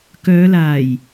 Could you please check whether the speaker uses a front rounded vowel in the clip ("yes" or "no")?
yes